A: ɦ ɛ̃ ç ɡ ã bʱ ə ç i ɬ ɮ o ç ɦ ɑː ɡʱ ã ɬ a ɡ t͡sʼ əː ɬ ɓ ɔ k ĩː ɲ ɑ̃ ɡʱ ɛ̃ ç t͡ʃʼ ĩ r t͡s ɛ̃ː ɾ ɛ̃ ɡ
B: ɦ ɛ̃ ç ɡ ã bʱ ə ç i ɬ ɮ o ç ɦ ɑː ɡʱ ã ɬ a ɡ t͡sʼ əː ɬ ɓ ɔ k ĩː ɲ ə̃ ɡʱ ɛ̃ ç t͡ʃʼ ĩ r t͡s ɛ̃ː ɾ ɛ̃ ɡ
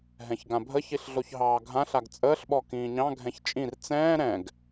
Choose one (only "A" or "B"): A